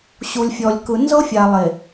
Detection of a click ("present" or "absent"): absent